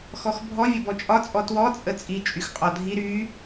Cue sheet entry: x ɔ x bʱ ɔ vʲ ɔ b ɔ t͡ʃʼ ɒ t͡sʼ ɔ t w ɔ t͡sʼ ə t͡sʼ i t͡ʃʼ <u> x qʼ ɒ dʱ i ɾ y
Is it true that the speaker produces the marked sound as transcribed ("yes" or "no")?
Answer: no